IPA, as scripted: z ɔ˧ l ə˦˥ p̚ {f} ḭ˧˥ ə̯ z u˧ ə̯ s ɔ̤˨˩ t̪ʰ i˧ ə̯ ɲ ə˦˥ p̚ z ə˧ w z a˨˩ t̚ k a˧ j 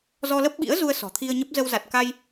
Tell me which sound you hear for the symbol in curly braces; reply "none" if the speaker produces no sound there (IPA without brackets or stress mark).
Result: ɓ